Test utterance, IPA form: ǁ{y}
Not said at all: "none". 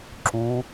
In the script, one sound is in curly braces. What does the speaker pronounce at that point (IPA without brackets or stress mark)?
u